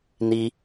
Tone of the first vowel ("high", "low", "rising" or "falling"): high